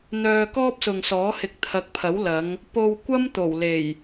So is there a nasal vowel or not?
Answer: no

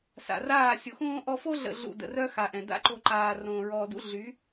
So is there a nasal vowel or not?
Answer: yes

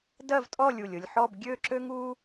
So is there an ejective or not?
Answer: yes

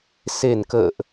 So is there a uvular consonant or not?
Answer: no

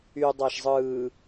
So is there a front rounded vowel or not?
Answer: yes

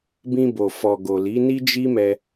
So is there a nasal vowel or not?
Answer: yes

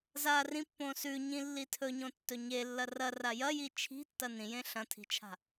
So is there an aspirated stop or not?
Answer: yes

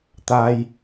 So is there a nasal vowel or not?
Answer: no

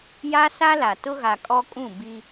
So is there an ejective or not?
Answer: yes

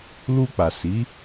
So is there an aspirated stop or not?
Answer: no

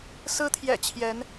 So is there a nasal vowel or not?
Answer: no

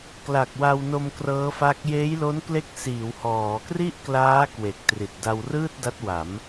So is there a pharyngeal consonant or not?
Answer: no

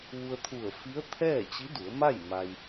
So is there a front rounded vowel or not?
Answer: no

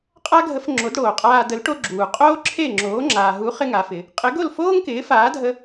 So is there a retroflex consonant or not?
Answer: yes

